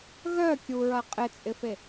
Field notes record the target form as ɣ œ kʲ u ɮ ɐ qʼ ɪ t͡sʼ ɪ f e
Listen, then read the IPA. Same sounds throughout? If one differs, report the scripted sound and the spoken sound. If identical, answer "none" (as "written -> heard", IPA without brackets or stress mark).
ɮ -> ɹ